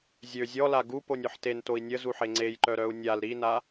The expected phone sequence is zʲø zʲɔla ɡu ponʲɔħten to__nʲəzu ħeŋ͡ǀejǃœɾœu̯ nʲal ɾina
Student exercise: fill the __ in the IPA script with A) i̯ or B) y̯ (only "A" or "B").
A